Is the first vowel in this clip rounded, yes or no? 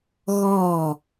yes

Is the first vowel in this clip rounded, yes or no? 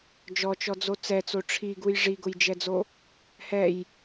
yes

